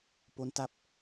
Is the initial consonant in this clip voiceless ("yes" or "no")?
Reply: yes